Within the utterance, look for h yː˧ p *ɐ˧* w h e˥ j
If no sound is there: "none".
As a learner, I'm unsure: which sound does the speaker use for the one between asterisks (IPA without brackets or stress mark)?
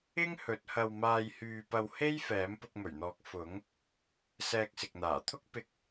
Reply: ɐ˧